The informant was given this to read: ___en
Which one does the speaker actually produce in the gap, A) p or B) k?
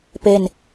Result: A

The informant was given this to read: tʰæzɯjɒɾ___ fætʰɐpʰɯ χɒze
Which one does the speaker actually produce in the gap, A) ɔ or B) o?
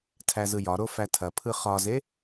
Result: B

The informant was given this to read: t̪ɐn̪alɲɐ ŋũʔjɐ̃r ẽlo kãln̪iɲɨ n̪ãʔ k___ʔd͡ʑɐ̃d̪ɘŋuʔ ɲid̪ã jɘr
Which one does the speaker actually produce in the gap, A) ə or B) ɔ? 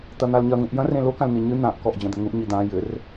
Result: B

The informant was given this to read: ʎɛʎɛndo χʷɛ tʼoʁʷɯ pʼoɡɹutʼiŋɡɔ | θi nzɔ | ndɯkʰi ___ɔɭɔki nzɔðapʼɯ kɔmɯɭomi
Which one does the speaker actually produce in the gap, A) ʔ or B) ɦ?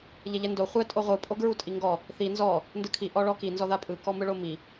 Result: A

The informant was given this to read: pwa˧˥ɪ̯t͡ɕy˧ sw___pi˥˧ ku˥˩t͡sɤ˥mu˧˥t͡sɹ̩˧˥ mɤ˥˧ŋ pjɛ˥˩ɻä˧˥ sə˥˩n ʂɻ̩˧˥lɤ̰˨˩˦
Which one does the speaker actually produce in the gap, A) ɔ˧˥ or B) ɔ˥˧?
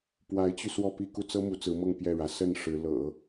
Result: B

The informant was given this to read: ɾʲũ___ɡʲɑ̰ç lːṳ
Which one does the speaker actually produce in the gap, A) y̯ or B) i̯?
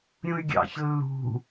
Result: A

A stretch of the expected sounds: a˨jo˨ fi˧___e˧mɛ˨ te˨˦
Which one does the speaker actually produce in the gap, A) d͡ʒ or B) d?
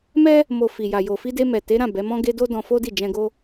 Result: B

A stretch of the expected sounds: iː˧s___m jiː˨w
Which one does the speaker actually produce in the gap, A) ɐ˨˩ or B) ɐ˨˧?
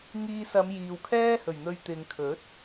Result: B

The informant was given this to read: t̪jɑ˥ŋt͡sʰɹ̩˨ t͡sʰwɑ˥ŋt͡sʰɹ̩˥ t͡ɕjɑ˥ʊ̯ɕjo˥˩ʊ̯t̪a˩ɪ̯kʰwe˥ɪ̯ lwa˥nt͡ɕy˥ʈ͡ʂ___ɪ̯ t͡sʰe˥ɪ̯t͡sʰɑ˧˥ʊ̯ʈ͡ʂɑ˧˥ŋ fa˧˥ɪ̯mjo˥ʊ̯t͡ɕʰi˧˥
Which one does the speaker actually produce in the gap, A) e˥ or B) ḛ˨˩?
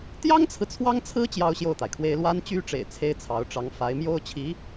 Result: B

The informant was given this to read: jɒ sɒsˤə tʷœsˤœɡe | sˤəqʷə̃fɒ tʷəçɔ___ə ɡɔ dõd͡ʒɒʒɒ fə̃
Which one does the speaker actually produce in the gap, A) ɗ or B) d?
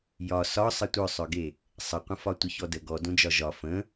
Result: B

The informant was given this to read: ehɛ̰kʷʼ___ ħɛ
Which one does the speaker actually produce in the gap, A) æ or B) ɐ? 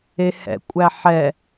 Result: A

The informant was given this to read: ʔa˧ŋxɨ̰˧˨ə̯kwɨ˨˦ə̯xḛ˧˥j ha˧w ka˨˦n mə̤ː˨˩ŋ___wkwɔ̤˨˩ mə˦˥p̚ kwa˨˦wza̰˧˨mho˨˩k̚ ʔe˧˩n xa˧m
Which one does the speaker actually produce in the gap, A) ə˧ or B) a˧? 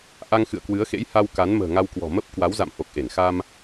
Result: B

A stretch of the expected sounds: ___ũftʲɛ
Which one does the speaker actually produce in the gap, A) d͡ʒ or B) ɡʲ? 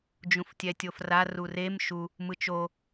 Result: A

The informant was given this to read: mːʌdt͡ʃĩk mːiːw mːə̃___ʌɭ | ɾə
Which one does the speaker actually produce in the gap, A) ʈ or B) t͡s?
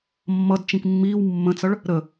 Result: B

